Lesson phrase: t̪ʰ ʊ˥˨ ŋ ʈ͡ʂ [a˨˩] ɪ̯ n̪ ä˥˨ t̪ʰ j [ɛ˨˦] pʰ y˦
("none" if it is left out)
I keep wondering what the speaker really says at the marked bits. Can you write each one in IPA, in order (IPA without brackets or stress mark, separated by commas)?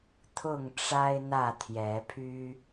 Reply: a˦, ɛ˨˦